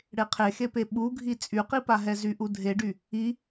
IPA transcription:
ɽ e qʰ e x e p e ɓ u ɡʱ i t͡sʼ y q i p a ɦ ɛ z y ʔ u dʱ e ɖ y | i

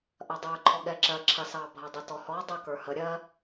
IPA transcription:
ʔ ɐ dˤ ə˞ ǃʰ ɔ ɠ ɛ ǁ ɜ ǁʰ ɐ s ɑ bʱ ɐ dˤ ə t ɔ h ɔ dˤ ɐ k ə˞ h ə ɾʲ ɜ

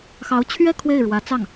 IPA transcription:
x ɑ˧˥ ʊ̯ t͡ɕʰ ɥ ɛ˥˧ kʰ w e˥˩ ɪ̯ ɻ w ä˧˥ t͡s ɑ˥˩ ŋ

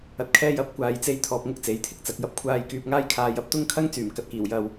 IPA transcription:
ɐ˧ t̚ kʰ ɛː˥ j ɐ˨˥ p̚ kʷ aː˨ j t͡s e˧ j t̪ʰ ɔː˧ p̚ ŋ ʊ˥ k̚ t͡s e˨˥ j t̪ʰ ɪ˧ k̚ t͡s ɐ˨ k̚ j ɐ˥ p̚ kʷʰ aː˧ j k yː˧ p̚ ŋ aː˥ j kʰ aː˧ j ɐ˨˥ p̚ t̪ ʊ˥ ŋ kʰ ɐ˥ ŋ t͡s yː˨˩ m k ɐ˨ t̚ k iː˨˩ w j ɐ˨ w

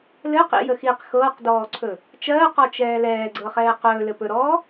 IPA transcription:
l ɘ q ḭ j ə x i q x ɤː q d ɔː ǀʰ ɵ | t͡ʃ ɜː q ɔ t͡ʃ ɛː l ɛː ɡ͡ǀ ɤ χ ɛː q ɵː l ɘ p ɵ ɾ ɔː

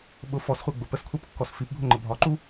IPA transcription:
ɓ ʊ f ɔ s χʷ ɜ ɡ͡b ʊ p ə s kʷʰ æ p kː ɔ s f i p bʱ ʊ ŋ͡ǃ ə bʱ ɒ ǃ u

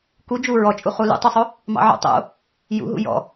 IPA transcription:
k u d͡ʒ u ɹ ɔ t͡ʃʼ u χ u l ṵ tˤ u sˤ o | m ɑ̰ ʕ o̰ tˤ o̰ | j ṵ ɦ ṵ j ɔ̰

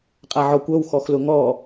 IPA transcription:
qʼ a ʕ ɔ kʷ œ w x ɔ x l ʊ ŋ ɔ

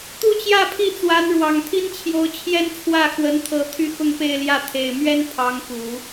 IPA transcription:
t̪ u˥˧ t͡ɕ j ä˥˧ pʰ i˥˩ t͡s w a˧˥ n ɻ w ɑ˨˩ ŋ t̪ʰ i˥ n t͡ɕʰ j o˧˥ ʊ̯ t͡ɕʰ j ɛ˥ n t͡sʰ w ä˥˩ x w ə˧˥ n t̪ʰ ɤ˧˥ t̪ʰ y˥˧ x ʊ˥˧ ŋ p e˥˧ ɪ̯ l j ä˥˩ t̪ʰ e˨˩ ɪ̯ m ɥ ɛ˥ n pʰ ɑ˧˥ ŋ k u˨˩˦

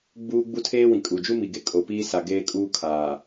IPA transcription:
ɡ͡b uː˦ ɡ͡b u˦ tʰ eː˦ w ĩ˨ kʼ u˨ d͡ʒ u˦ m i˨ ɡ e˦ kʼ o˨ p iː˦ s a˨ ɡ eː˦ kʼ uː˦ kʰ aː˨

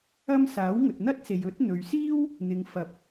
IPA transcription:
ɐ˥ m s aː˨˥ w ŋ ɵ˨ t̚ n̪ ɐ˥ t̚ s e˨ j ɵ˨˥ t̚ n̪ ɵ˨ ɥ s iː˥ w | n̪ ɪ˨ ŋ f ɐ˧ p̚

